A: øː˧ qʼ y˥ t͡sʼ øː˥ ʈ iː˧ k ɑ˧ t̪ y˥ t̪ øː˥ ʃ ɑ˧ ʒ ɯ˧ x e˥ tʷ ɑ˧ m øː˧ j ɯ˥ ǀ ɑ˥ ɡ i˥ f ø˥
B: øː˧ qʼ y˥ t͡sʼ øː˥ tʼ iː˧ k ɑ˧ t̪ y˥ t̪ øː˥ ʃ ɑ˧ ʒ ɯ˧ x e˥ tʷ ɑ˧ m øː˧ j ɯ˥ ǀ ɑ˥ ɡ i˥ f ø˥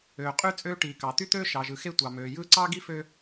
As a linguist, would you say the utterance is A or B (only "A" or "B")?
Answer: A